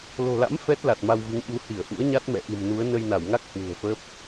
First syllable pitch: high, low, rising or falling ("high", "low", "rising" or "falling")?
low